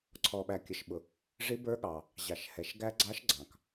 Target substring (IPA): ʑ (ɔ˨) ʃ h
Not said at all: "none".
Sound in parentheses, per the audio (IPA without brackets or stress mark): ɑ˨